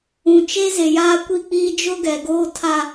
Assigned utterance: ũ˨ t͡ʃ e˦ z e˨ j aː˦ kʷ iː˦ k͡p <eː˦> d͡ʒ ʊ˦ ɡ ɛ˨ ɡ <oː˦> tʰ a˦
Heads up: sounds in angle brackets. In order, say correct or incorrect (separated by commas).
incorrect, correct